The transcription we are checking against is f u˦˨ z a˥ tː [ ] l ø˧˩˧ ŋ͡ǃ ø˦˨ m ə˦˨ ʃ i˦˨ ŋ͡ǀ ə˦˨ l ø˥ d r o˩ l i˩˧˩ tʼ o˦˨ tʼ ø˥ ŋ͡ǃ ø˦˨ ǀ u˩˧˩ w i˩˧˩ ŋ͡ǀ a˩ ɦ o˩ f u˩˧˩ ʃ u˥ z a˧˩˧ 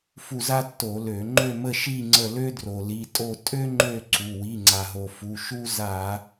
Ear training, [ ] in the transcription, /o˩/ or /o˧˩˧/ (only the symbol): o˧˩˧